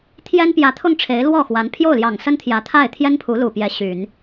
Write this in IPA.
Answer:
t̪ʰ j ɛ˥ n p j ä˧˥ t̪ʰ ʊ˥˩ ŋ ʈ͡ʂʰ e˧˥ ɪ̯ l w ɔ˥˩ x w a˧˥ n pʰ j o˥˩ ʊ̯ l j ɑ˨˩ ŋ s ə˥ n t̪ʰ j ä˧˥ t̪ʰ a˥˩ ɪ̯ t̪ʰ j ɛ˥ n pʰ u˧˥ l u˨˩ p j ɛ˧˥ ɕ y˨˩˦ n

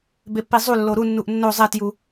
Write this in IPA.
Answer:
b e pː i zˤ u lː o ɾ u nː u ʔ nː o zˤ e t j u

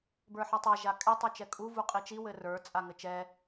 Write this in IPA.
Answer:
b ə˞ ħ ɤ tˤ a ʒ a kʼ ɛ tˤ ə˞ t͡ʃ ɛ kʼ u v u qʼ i t͡ʃ i w ɘ r ə˞ t͡sʼ a ŋ ɘ t͡ʃ ɛ

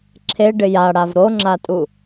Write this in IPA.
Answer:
ǁʰ e ɖ ɪ j a ɽ a v ɾ o ŋ͡ǁ a tʼ u

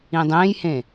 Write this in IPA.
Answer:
ĩ dˤ ẽ j h ẽ

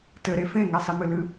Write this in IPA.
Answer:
t ɘ ɾ e f ẽ ŋ ɛ sˤ i m ɨ l ɨ

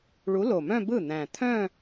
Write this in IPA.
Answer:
ɭ u˨˥ l o˨˩ m œ̃˥˧ b ɯ˥˩ n̪ æ̃˨˩ t̪ʰ œ̃˥˧

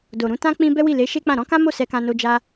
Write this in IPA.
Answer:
d o˨ ɾ ũ˨˦ t ã˦ k͡p ĩ˧ b ɛ˦ w i˦˨ l e˨˦ ʃ e˦ k͡p ã˦˨ ɾ ɔ̃˨˦ k ã˦ m o˦˨ s ɛ˧ k ã˧ n o˧ d͡ʒ a˦

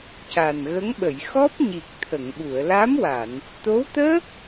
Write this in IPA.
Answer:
c a˨˩ n ɣ ə˧˥ ŋ ɓ ə˨˩˨ j x ɔ˦˥ p̚ ɲ i˨˩ k̚ t̪ʰ ə˨˩˨ ŋ ɓ u˨˩˨ ə̯ l a˧˥ m w a˨˩˨ n | t̪ o˧˥ w t̪ əː˦˥ k̚

